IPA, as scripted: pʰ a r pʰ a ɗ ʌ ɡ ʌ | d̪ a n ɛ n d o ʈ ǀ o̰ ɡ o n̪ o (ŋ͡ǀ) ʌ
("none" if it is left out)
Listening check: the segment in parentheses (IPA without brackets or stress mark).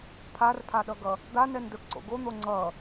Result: ŋ͡ǀ